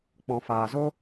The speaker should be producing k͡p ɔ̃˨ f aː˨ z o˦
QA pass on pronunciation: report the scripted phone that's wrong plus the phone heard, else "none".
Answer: none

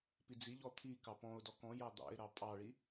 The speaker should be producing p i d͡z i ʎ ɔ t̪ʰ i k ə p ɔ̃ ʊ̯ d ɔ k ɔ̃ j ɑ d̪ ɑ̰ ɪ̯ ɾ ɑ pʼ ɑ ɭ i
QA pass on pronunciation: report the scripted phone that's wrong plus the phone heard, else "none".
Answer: ə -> ɑ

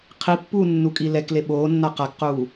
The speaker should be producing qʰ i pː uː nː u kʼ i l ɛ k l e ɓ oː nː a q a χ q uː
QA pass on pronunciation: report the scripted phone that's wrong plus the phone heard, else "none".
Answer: χ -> k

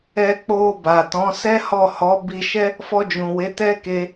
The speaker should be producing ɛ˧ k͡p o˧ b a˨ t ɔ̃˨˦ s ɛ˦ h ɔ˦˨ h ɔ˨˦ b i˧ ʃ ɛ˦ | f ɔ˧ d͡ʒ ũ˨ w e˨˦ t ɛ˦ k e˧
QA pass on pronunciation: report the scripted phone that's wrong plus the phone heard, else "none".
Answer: none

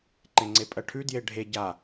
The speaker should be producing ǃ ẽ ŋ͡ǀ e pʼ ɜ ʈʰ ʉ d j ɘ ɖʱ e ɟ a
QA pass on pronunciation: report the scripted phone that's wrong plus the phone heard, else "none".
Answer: ɘ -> e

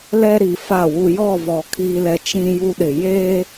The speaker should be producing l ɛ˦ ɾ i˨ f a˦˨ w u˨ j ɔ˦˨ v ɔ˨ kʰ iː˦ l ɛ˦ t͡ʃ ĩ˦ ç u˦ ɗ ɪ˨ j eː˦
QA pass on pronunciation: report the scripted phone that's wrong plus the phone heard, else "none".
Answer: ç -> j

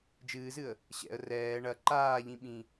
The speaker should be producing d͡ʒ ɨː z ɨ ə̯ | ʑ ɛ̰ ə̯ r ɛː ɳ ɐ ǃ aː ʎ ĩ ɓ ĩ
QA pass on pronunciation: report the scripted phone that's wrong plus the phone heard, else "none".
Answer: ʑ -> ɕ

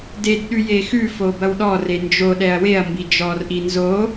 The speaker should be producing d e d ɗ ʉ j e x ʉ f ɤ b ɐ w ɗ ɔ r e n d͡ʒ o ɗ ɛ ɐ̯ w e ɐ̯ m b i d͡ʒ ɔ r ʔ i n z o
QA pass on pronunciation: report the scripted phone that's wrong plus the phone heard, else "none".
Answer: ɤ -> o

